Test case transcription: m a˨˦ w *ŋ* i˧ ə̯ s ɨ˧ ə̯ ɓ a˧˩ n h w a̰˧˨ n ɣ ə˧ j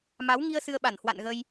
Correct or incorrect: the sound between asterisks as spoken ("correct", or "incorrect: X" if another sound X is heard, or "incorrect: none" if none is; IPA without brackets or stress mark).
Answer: correct